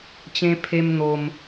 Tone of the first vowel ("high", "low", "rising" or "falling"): high